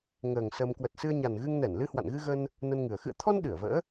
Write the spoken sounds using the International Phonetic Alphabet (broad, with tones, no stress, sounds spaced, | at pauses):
ŋ əː˨˩ ŋ s əː˧ m k w ə˨˩ t̚ s ɨ˧ ə̯ ɲ a˨˩ n ɣ ɨ˧ ŋ n ɛ˧˩ n l ɨ˧ h w a̰˧˨ n ɣ ɨ˧ ɣ ə˧ n | n ə˧ n ŋ ɨ˨˩ ə̯ x ɨ̰˧˨ ə̯ t̪ʰ ɔ˧ n ɗ ɨ˧˩ ə̯ v ə̰ː˧˥